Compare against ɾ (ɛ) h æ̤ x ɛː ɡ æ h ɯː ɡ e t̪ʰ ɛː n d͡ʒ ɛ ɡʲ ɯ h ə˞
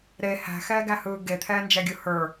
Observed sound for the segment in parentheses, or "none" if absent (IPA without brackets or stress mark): e